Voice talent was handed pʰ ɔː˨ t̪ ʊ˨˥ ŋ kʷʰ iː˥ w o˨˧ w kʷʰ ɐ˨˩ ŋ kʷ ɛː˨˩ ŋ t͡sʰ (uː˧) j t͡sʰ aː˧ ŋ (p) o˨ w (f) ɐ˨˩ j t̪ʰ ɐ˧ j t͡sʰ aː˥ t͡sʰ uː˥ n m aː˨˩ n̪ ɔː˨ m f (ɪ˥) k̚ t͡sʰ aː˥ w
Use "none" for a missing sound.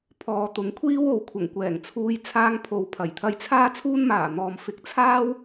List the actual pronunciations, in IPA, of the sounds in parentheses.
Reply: uː˧, pʰ, pʰ, ɪ˨˥

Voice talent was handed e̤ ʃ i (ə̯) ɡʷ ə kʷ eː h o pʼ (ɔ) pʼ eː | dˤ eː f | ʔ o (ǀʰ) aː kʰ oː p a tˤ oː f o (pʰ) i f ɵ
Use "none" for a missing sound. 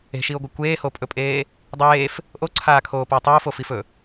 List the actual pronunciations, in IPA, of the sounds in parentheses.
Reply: ʊ̯, ɵ, ǀʰ, f

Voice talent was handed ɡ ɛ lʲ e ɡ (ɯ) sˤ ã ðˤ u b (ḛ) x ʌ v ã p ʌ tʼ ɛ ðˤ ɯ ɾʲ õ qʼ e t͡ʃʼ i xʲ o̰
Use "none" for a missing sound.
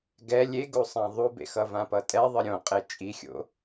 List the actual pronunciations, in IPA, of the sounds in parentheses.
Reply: u, ḛ

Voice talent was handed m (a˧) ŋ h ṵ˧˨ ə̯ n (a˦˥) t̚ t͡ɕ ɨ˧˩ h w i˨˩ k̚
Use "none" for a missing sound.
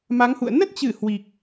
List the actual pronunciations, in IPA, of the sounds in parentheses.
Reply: a˨˦, ə˦˥

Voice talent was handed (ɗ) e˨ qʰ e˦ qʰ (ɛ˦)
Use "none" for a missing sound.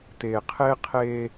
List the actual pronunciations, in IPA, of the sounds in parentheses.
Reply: t, e˦

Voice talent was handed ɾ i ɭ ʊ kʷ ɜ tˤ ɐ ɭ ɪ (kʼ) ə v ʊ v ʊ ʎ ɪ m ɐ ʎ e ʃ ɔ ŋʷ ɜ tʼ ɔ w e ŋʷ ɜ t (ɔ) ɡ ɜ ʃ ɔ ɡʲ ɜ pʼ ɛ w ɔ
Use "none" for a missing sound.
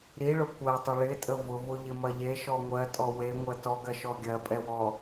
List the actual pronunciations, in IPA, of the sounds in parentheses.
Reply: tʼ, ɔ

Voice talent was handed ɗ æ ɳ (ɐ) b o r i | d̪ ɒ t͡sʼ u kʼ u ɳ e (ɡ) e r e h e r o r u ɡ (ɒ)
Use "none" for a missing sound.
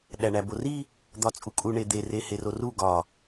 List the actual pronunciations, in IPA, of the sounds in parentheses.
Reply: æ, d̪, ɒ

